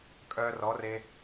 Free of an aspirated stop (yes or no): yes